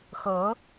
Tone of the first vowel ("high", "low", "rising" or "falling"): rising